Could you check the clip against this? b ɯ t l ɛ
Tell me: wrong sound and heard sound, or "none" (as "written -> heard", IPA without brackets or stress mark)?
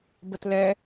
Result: ɯ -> ə